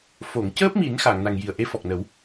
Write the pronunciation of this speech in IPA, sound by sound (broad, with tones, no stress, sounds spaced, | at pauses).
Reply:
f o˨˩˨ ŋ c əː˦˥ p̚ m i˨˩˦ n x a˨˩˨ ŋ n a˨˩ ŋ j i˨˩ ə̯ ʔ e˧˥ f ɔ˨˩ k̚ n ə˨˩˦ w